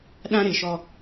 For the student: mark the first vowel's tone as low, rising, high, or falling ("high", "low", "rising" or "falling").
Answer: high